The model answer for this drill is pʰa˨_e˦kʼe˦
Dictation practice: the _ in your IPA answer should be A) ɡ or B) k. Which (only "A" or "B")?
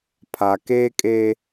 B